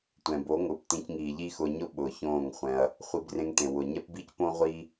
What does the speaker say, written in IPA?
tʷɛ̃˨bo˨˦ŋʊː˨p tĩ˧cŋiː˨ʎiː˦x ʊː˧ɲʊ˦ ɓʊː˨çõː˦˨ŋχʷɛ̃˧ɐ̯ | χʷi˧brẽ˧ŋ tẽ˨ wʊ˨ ɲɛ˦pbi˦cpõ˦ʁʷiː˦

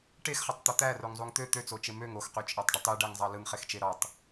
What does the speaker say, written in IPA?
ʈexχɑtˤt̪o t̪æroŋzˤuŋ t̪ø t̪øt͡sot͡ʃe møŋ oxqyt͡ʃʼɑtˤɖɯtˤ yɖæŋzˤɑ lɯŋχext͡ʃe ɾɑtˤ

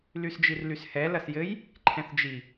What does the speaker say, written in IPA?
lysd͡ʒirlyshɛ lɐsjɘj | ǃʰɛ̃θd͡ʒi

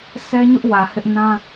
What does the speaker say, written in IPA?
sɛ˦ɲʊ˦ʔ wä˨hɪ˦ʔ nã˦

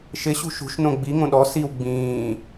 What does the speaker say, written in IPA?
ʃɪɕṳ ʃṳʃnõ ɡ͡biŋõ ɗɔ siw ɡ͡bĩː

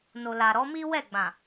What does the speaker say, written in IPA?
no˨la˨ ɾɔ˨˦mi˦ wɛ˦˨ɡ͡bã˨

